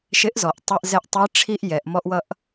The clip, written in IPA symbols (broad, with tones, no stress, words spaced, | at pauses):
ʃɪ˧˥ʔzɔ˩ʔ tˤɛ˧ʔzɛ˧ʔtˤi˧˥ ʈ͡ʂʰi˥ʔ jɛ˩˧ʔmɔ˥ʔwʌ˥ʔ